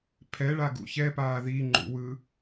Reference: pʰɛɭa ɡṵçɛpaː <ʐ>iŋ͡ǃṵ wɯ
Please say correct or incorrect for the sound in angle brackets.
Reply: incorrect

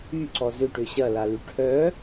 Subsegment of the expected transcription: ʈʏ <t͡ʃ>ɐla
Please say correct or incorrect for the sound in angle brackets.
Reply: incorrect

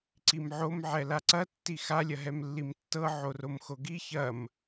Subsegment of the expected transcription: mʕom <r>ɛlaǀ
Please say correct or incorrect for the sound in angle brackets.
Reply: incorrect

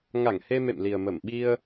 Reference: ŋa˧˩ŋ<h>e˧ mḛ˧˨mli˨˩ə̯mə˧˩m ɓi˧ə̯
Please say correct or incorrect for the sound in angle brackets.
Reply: correct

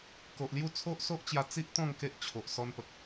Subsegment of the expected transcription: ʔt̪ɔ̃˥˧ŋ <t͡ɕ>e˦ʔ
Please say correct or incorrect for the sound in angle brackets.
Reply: incorrect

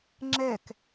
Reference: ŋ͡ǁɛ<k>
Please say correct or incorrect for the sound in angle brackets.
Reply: correct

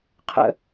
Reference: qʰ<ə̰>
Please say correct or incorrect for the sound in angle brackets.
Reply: correct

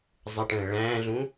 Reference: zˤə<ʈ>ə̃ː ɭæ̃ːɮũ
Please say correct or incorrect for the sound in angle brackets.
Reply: correct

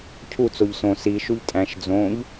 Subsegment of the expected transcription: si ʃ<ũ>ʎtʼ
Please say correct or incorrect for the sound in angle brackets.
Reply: incorrect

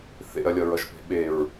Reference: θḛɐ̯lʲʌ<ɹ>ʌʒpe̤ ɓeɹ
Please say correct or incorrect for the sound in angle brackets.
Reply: correct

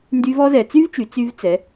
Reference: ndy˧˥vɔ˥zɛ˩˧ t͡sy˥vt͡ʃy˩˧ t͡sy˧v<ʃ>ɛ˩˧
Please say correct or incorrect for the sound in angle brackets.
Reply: incorrect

